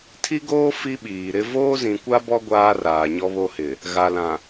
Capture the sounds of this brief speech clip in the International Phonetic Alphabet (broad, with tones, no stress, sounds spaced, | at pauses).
tʰ i˦ ɡ oː˦ f i˦ ɓ iː˨ ɾ ɪ˦ v oː˦ z ĩ˨ kʷ a˦ b ɔ˦ ɡʷ aː˦ r aː˨ ɲ ɔ˦ β o˦ h ɪ˨ | ɣ a˨ l ã˨